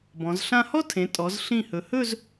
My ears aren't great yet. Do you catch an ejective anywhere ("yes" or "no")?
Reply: yes